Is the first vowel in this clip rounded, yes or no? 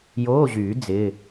yes